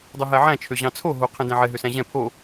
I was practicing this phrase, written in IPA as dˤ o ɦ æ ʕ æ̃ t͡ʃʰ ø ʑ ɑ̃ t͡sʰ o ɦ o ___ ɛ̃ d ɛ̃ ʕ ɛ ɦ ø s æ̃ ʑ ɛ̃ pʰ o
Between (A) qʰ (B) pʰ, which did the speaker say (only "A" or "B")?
A